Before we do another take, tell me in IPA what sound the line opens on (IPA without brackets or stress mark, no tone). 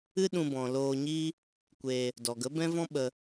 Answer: ɨ